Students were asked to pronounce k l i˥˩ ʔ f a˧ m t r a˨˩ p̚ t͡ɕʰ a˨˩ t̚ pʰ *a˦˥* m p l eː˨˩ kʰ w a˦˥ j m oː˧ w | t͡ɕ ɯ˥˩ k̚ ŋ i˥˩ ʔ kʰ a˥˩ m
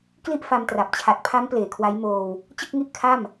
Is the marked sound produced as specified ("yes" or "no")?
yes